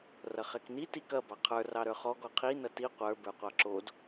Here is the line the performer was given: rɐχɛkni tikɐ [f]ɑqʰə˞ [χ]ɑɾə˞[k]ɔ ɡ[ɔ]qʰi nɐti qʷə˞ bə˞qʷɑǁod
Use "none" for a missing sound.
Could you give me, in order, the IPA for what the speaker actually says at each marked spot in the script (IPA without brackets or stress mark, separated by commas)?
b, r, χ, ɔ